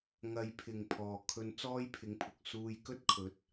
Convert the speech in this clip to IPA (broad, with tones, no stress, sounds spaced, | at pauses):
ŋ ɐ˨˧ j pʰ ɪ˨˩ ŋ pʰ ɔː˨˩ kʰ ɵ˧ n t͡s ɔː˥ j pʰ ɪ˨˥ ŋ pʰ ʊ˨ k̚ s uː˧ j k ɵ˥ t̚ kʰ ɵ˨˥ t̚